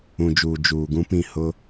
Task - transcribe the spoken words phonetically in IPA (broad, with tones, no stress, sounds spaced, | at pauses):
ũ˨ d͡ʒ uː˨ d͡ʒ uː˨ ɡ ũ˦ p ĩ˦˨ h ʊ˦